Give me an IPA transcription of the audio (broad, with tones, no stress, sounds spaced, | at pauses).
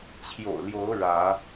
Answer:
t͡ɕʰ j o̰˨˩ ʊ̯ l j o˨˦ ʊ̯ ɻ ä˨˦